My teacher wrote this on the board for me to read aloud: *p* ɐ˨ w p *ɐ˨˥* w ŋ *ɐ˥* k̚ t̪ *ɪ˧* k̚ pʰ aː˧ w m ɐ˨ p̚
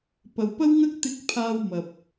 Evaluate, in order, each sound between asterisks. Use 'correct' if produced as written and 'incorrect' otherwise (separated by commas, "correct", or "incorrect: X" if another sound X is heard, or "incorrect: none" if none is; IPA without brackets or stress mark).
correct, incorrect: ɐ˥, correct, incorrect: ɪ˥